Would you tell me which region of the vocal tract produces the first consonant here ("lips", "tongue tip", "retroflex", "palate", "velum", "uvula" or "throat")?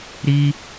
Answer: tongue tip